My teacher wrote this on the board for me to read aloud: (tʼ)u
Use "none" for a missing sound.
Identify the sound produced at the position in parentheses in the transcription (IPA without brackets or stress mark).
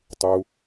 tˤ